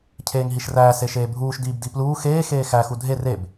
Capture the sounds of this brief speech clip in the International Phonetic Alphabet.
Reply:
cʰ eː ŋ ɦ i ʃ r æː s e ʃ eː bʱ uː ʃ d iː b d i p l uː x eː x eː x æ x u dʱ e r e b

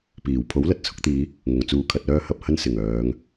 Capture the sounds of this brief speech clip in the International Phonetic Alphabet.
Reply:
p iː˨˩ w pʰ o˨˥ w l ɐ˨ t̚ t͡sʰ ʊ˧ k̚ t̪ iː˨˧ | ŋ ʊ˨ ŋ t͡s uː˧ kʰ ɐ˧ t̚ œː˥ h ɐ˧ p̚ h ɐ˥ n s ɪ˨˩ ŋ œː˨˧ ŋ

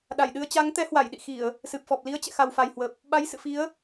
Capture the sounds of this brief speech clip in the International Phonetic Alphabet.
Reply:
ɗ a˧˩ j ɗ ɨ˧ ə̯ t͡ɕ a˨˦ ŋ t̪ ɛ˨˦ h w a˧˩ j ɗ ḭ˧˨ x i˧˩˨ ə̯ | s ɨ˨˩ p̚ f ɔ˨˩ p̚ l i˨˦ ə̯ t͡ɕ ɛ̰˧˨ x a˨˩ w f a˨˩ j h w ə˨˩ p̚ | ɓ a˨˦ j s ɨ̰˧˨ f i˨˦ ə̯

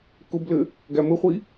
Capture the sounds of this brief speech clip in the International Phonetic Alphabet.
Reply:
k ʊ b l ɘ | ɡ æ m ɘ χʷ i

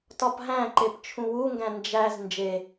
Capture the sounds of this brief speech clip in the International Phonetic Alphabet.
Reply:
t ɒ p ɦ æ̃ ǃ e p t͡ʃʰ ũ w u ŋ ɡ æ̃ n d͡ʒ æ z n d͡ʒ e

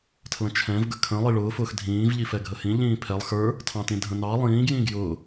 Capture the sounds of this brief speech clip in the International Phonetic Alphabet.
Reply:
tʰ l ə̃ t͡ʃʰ ɛ̃ v ɡ ə kʰ ə̃ lˠ i ɭ ʊː f ʊː x dʱ ĩː v ʎ i f ɛ ɡʱ ə h ĩ ʎ ĩː pʰ ɛ lˠ x ə˞ | tʰ ɑ̃ t ĩ dʱ ə̃ n ɑ lˠ ĩː ɡ j ĩ ɡ j ʊː

